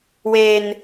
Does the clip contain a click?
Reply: no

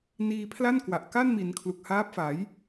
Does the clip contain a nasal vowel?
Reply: no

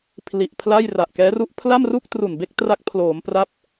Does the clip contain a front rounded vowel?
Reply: no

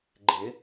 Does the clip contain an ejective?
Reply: no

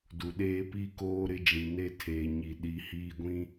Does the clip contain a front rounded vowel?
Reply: no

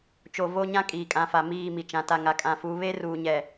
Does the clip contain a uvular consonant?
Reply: no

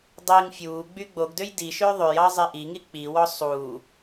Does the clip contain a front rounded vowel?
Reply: yes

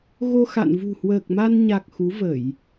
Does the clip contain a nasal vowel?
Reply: no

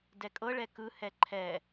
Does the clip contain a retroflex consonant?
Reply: yes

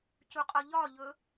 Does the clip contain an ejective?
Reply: yes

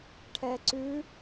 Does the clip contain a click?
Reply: yes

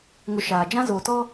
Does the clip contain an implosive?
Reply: no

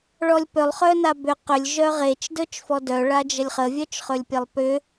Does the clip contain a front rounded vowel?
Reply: yes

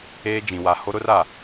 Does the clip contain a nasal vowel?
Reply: yes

